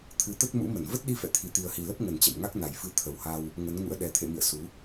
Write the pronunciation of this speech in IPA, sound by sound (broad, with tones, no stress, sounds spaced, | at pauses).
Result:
t̪ʰ ɨ˨˦ t̪ ə˦˥ t̚ m ṵ˧˥ m ə˧˩ n v ə˦˥ t̚ ɗ i˧ f ɛ̰˧˨ t̪ʰ i˨˩ t̪ i˨˩ ə̯ h i˨˩ l ə˦˥ p̚ ŋ ə˨˩ n t͡ɕ ɛ̰˧˨ m ŋ a˦˥ k̚ n a˨˩ j f ɨ˧ t̪ʰ ə˨˩ w h a˧ w | ŋ ə˨˦ n ŋ ṵ˧˥ ə̯ ɗ ɛ˨˩ t̪ʰ ḛ˧˨ m ḭ˧˨ ə̯ s u˨˦